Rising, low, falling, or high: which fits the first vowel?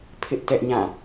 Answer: high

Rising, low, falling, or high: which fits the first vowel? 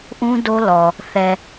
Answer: high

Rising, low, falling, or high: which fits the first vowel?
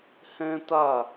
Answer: high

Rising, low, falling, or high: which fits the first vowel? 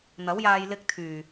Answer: rising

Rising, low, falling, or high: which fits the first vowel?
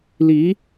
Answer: rising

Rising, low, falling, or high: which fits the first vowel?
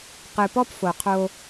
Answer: low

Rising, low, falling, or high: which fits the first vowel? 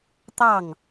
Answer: falling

